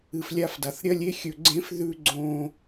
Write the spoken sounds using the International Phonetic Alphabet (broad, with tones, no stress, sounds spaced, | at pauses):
ɨ˨ f lʲ a˧ f d a˨ θ ɾʲ ɐ˦ lʲ e˦ xʲ ɵ˧ ɡ͡ǀ ẽ˦ f ð ʉ˧ ɡ͡ǀ õ˧